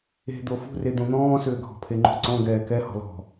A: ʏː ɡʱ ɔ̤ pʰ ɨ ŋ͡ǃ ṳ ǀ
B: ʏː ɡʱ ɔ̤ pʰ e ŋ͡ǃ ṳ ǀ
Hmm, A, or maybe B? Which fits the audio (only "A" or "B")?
B